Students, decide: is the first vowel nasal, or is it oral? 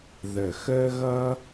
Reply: oral